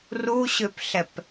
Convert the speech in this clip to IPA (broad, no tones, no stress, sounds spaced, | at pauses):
r u ɕ ø p ɬ ɛ p